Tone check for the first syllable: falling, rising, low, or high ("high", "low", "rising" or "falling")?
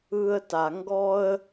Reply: high